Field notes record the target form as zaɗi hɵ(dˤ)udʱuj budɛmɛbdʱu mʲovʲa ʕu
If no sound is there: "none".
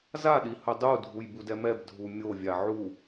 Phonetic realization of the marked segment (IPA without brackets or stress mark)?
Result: dˤ